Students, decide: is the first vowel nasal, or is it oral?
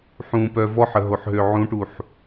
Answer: nasal